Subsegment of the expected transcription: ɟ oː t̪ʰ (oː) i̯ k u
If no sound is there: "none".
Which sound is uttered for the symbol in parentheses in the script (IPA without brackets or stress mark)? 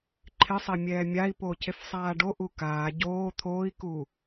oː